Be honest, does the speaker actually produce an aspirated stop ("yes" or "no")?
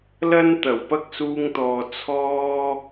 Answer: yes